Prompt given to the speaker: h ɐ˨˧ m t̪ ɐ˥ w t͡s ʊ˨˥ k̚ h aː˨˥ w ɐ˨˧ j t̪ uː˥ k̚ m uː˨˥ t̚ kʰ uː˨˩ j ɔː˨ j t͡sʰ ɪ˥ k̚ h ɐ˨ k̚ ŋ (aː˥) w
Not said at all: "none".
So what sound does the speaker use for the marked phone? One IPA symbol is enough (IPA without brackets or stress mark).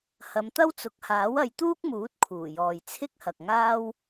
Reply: aː˥